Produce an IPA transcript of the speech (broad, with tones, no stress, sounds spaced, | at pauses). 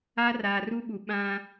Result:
a˦ r aː˨ r u˦ ɓ u˨ ɓ ã˦